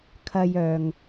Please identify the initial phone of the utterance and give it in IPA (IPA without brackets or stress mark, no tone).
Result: kʰ